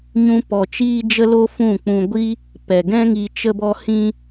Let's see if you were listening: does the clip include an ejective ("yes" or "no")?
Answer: no